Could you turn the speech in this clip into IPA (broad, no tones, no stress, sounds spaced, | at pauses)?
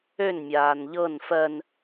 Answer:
ø n mʲ aː n ʎ ɤ n f ɜ n